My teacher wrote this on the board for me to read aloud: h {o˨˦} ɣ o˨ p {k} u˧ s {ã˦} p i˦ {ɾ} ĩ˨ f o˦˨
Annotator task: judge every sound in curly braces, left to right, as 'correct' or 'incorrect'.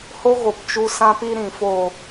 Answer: incorrect, incorrect, correct, correct

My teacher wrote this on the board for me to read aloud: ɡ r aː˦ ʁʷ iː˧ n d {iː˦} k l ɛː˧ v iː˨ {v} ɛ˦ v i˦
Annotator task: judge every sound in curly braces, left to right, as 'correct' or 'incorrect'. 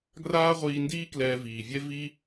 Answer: correct, incorrect

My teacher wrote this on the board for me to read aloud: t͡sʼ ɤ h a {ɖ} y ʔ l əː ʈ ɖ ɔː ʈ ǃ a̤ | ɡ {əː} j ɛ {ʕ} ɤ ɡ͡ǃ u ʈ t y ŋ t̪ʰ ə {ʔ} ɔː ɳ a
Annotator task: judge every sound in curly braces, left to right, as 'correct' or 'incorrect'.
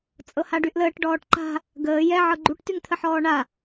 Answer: correct, correct, correct, incorrect

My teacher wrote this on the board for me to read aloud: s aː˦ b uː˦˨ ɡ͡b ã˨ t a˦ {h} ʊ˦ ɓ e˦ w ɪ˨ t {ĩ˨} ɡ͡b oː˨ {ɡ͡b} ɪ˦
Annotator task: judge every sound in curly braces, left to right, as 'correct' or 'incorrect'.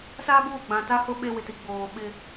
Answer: correct, incorrect, incorrect

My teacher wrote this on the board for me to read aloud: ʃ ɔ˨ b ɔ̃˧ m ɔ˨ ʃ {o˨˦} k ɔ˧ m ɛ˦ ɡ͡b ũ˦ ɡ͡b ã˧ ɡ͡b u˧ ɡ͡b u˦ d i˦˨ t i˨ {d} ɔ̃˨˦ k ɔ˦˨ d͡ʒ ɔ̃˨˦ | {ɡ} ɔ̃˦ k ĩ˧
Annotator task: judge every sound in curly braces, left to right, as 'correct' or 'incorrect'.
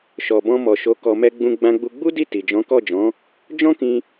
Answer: correct, incorrect, incorrect

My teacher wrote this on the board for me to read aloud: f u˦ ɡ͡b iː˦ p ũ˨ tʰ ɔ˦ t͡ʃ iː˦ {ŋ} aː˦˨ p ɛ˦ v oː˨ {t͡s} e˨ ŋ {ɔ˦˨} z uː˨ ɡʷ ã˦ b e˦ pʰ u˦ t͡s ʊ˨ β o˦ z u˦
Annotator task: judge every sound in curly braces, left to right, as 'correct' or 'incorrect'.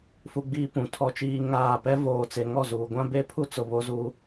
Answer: correct, correct, correct

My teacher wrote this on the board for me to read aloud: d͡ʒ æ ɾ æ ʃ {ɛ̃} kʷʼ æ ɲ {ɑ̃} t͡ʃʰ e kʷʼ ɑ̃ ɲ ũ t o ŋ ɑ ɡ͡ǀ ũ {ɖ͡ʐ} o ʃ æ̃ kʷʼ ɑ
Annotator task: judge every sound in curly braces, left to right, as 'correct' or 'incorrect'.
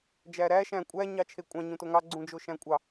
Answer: incorrect, incorrect, incorrect

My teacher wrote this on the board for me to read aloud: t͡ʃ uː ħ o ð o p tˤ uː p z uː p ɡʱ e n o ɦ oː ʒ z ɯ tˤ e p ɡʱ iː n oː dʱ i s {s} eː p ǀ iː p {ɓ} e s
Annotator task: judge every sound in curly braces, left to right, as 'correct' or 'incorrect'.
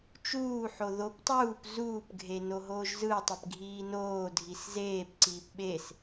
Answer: incorrect, correct

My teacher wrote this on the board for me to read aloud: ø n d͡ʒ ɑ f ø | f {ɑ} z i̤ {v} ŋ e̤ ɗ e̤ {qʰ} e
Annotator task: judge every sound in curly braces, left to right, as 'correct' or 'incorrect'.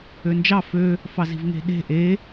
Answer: correct, correct, incorrect

